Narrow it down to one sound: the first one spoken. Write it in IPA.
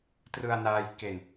t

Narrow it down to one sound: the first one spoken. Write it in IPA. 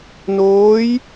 n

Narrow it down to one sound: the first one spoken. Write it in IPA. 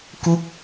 k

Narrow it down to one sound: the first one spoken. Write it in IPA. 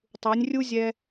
tˤ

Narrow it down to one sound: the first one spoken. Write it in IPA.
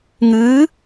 ŋ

